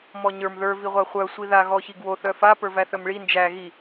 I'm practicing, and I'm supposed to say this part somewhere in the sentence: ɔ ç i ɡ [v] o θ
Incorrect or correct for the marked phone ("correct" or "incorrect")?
incorrect